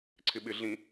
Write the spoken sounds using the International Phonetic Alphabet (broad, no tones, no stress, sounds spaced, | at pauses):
ǀʰ ɪ ɓ ɪ ɮ ĩ